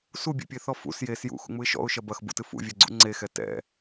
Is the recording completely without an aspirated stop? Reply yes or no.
yes